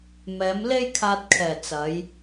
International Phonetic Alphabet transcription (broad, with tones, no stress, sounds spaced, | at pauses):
m ɛː˨˧ m l e˥ j kʰ aː˧ t̚ kʰ ɛː˨˩ t͡s ɐ˨˧ j